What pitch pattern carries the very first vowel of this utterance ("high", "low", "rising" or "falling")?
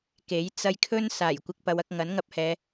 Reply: rising